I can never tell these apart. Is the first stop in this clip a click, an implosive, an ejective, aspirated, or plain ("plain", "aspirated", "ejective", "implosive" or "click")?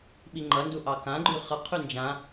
implosive